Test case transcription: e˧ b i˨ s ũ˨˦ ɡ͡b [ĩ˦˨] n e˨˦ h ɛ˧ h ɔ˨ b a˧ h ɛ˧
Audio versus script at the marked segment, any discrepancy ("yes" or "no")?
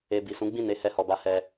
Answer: no